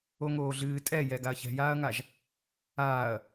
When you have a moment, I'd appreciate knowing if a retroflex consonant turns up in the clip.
no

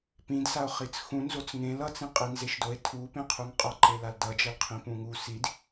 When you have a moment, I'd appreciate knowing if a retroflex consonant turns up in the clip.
no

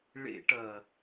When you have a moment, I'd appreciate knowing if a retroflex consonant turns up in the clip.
yes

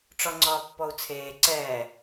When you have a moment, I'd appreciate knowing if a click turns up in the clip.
yes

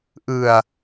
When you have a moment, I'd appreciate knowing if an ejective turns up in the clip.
no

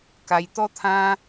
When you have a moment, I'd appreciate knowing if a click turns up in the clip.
no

